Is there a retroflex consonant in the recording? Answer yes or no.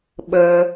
no